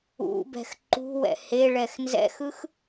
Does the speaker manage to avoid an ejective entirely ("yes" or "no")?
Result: yes